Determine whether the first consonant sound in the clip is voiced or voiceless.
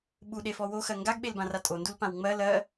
voiced